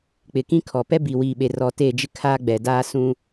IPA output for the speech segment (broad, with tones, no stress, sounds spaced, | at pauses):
k͡p ɪ˨ k ĩ˦ kʰ ɔ˨ p ɛ˦ b i˨ w iː˨ ɓ e˨ r ɔ˨ t e˦˨ d͡ʒ ɪ˦ kʰ aː˦ ɡ͡b ɛ˨ d aː˦ s ũ˦